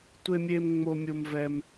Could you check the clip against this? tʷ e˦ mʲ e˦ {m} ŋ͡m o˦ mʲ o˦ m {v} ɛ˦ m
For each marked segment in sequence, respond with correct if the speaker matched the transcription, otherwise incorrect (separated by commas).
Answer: correct, correct